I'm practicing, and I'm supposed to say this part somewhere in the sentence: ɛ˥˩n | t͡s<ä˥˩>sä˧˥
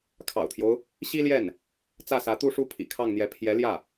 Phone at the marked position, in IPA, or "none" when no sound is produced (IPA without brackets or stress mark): ä˥˩